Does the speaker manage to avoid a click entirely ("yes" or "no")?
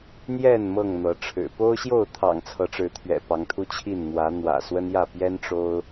yes